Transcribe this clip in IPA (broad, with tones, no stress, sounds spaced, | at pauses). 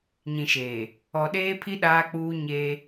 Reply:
ɲ ĩ˨ ʃ eː˨ | ɔ˨ ɗ eː˦ pʰ i˦ ɗ aː˦ k͡p uː˦ ɲ eː˦